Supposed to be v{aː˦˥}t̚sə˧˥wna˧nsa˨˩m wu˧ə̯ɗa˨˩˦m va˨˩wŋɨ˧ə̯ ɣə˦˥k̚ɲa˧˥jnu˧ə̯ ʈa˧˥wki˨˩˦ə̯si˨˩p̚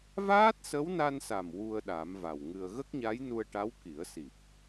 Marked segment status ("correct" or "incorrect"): correct